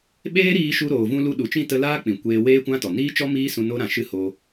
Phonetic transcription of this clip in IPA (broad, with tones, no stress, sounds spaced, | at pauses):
ɓ eː˦ ɾ iː˧ ʃ u˧ ɾ oː˨ v ũ˧ l u˧ ɗ u˨ t͡ʃ ĩ˦˨ t ə˧ l aː˦ k͡p ĩ˨ kʷ eː˧ w eː˦ kʷ ã˦ t ɔ˨ n iː˦ t͡ʃ ɔ˦ m iː˦ s ũ˧ n o˦ ɾ ã˨ ʃ ɨ˦ h o˧